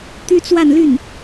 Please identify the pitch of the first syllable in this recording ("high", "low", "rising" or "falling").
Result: high